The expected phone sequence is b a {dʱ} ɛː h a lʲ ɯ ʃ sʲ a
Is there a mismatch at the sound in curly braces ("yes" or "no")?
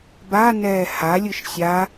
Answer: yes